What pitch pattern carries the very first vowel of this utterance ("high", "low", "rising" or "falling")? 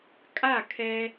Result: falling